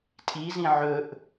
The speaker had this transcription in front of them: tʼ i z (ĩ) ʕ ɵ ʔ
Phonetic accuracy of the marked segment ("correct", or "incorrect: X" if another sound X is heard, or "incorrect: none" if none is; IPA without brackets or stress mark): correct